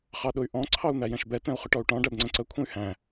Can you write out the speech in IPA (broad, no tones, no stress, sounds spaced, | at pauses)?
χ ɑ ɗ ʊ y̯ ʔ ɔ̃ ǀʰ ɑ u̯ n̪ æ j ɛ̃ ʃ b ɛ t ɛ̃ u̯ χ ʊ ʈ ɔ u̯ ʈ ɔ̃ ɖ æ b ŋ͡ǀ ə̃ ǀ ə kʷʰ ə̃ y̯ h æ̃